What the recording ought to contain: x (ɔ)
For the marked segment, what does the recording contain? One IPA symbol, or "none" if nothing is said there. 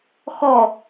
ɔ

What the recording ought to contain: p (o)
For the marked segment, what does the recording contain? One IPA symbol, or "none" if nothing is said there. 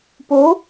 o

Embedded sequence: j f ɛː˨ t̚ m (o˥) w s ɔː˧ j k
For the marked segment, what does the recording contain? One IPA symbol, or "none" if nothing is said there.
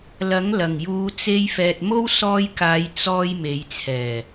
o˥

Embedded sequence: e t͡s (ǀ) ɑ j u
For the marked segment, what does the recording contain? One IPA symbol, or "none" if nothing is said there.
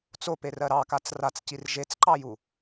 ǃ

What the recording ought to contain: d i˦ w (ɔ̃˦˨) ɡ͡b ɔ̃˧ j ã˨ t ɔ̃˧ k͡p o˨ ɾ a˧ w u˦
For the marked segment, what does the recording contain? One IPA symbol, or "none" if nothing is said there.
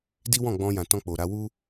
ɔ̃˦˨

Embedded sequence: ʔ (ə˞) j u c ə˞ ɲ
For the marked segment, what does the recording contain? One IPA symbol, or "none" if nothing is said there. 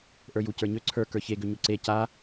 ə˞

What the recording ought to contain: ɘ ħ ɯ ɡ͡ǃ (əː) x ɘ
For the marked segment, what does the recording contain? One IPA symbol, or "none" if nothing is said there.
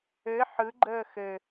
əː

